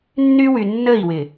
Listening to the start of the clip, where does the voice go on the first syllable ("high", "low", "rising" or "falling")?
high